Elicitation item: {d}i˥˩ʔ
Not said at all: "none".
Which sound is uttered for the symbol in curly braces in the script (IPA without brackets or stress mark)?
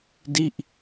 d